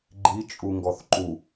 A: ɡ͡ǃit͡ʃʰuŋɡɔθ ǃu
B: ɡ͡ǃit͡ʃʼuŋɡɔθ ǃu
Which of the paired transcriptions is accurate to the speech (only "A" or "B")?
B